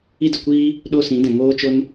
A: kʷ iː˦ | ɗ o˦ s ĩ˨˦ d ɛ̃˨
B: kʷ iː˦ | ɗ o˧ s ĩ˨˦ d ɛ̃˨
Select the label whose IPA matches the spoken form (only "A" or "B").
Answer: A